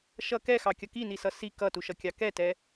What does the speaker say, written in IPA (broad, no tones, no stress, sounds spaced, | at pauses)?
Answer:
ʃ ʌ k ɛ x ɑ kʲ ʌ k i n i s ʌ s i k ʌ t u ʃ ʌ kʲ ɑ k ɛ t ɛ